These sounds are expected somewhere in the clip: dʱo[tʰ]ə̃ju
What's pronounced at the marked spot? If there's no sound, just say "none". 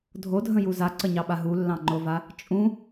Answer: dʱ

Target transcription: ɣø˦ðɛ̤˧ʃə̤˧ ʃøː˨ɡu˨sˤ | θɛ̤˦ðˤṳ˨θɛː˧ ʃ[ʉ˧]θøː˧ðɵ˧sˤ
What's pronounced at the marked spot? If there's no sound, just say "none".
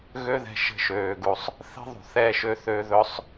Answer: ø˧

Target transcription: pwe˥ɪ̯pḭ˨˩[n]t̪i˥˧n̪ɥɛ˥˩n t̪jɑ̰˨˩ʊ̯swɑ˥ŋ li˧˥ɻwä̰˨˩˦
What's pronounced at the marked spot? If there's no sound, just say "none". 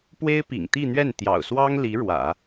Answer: ŋ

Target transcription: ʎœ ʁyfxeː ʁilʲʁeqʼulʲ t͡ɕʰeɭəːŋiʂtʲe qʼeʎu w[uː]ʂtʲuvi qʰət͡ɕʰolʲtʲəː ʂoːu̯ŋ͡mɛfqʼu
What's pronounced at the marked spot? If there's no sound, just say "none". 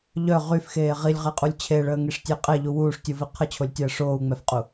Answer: uː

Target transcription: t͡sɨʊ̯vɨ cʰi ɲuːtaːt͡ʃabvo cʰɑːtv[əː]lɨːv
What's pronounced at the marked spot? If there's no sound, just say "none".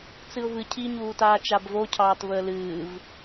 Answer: əː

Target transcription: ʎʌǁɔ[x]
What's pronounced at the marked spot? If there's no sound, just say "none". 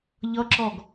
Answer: ɡ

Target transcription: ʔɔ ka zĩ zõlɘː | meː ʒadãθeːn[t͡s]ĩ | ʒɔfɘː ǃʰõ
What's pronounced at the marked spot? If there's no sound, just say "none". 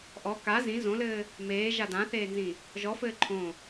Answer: z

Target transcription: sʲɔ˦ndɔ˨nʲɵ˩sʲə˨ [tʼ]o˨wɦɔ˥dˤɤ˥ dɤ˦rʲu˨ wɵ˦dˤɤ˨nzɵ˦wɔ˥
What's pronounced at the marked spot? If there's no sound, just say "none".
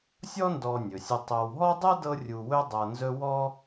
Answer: tˤ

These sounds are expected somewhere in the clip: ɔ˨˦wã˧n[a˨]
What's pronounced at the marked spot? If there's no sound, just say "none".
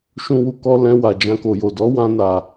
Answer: a˨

